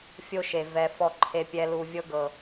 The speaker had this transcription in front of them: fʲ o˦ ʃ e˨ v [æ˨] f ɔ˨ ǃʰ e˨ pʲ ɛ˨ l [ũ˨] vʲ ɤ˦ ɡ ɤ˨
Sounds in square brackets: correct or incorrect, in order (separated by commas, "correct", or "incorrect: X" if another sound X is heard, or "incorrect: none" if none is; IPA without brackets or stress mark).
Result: incorrect: ɛ˨, incorrect: u˨